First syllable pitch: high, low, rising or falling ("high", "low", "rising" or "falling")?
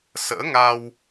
rising